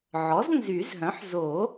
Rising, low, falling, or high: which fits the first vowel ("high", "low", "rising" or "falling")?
rising